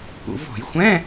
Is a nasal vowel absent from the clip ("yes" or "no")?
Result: no